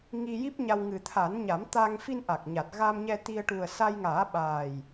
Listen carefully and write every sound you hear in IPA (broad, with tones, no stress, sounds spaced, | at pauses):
ŋ i˧ j i˦˥ p̚ ɲ a˧ w ŋ ɨ˨˩ t̪ʰ a˨˩˦ n ɲ a˨˩˦ m t̪ a˧ ŋ f i˧ n ʔ a˨˩ k̚ ɲ a˨˩ t̚ ɣ a˧ m ɲ ɛ˧ t̪ i˧ ə̯ ʈ u˨˩ ə̯ s a˧ j ŋ aː˨˩˦ ɓ aː˨˩ j